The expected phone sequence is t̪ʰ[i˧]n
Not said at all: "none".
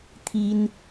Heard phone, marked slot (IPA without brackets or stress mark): i˧